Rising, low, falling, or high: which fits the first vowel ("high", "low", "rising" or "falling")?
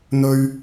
high